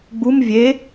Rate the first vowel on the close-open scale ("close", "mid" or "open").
close